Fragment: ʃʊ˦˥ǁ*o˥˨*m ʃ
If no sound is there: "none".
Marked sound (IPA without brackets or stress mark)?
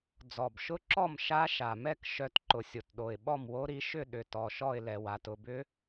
ɔ˥˨